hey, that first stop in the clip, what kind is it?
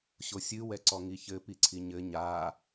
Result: click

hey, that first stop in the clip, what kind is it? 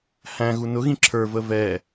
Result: click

